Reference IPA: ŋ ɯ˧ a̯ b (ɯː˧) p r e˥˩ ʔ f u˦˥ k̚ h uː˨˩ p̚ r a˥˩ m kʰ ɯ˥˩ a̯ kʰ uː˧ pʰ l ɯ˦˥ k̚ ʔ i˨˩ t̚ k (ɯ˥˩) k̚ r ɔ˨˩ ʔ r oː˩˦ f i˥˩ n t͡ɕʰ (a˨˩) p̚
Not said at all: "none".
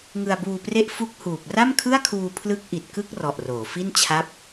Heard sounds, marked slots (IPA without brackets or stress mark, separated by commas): uː˧, ɯ˥˩, a˦˥